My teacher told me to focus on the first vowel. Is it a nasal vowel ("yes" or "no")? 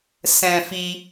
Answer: yes